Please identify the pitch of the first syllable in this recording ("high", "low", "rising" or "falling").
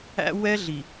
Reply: high